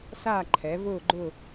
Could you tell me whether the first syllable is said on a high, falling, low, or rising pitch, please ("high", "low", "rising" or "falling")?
falling